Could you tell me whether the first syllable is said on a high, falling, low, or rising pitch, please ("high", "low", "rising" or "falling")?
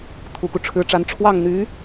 low